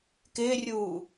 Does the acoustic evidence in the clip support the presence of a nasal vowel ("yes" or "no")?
no